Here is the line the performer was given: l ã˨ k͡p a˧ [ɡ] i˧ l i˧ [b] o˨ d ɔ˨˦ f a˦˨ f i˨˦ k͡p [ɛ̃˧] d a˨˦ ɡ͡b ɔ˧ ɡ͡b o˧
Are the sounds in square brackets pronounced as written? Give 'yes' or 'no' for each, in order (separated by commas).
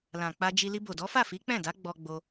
no, yes, no